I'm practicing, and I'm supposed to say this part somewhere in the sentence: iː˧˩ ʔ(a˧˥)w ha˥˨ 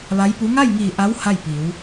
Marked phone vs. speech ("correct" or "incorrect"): correct